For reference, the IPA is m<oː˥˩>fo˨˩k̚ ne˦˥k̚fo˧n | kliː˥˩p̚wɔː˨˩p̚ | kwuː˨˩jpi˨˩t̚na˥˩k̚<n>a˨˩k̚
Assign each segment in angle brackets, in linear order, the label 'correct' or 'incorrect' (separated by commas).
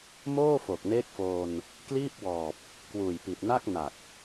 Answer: correct, correct